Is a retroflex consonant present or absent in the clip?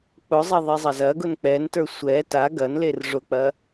present